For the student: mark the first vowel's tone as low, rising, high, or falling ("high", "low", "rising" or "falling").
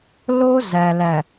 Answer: high